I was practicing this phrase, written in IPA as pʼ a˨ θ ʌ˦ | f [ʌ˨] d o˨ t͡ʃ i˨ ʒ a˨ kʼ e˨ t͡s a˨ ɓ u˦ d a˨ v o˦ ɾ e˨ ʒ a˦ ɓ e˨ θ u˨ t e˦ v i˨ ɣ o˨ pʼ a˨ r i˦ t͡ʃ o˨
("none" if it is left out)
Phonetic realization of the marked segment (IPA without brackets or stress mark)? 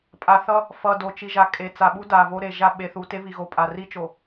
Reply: ʌ˨